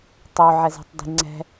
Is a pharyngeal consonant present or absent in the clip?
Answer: present